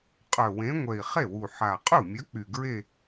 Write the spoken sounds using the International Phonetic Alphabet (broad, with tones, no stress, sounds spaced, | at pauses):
qʼ œ˨˩ w ẽ˨˥ ŋʷ ɛ˨˩ i̯ χ e˥˩ w u˨˩ ħ a˨˩ qʼ u˥˩ mʲ œ˨˥ k͡p y˨˩ ɡ ɹ e˥˧